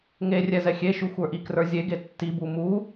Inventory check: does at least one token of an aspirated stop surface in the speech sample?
no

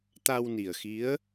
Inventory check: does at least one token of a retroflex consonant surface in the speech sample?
no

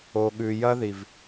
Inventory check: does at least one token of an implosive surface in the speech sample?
yes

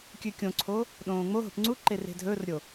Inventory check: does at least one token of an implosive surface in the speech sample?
yes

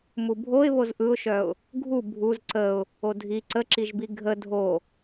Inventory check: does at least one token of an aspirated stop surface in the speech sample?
no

